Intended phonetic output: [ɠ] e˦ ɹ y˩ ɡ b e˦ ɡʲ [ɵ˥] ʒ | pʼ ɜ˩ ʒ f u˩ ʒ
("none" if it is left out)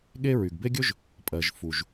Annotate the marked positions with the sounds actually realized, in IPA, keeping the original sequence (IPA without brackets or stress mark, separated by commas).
ɠ, ɵ˥